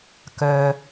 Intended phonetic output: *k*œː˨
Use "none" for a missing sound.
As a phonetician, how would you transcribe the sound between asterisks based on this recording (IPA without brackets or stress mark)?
k